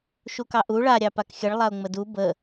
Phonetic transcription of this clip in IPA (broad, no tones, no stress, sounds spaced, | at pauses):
ʃ u k ɑ ʔ u ɭ a ɾʲ ɑ p a k xʲ ə ɭ lˠ a ʊ̯ ŋ͡m ə d u b ə